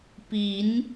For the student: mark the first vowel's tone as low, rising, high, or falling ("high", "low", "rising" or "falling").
rising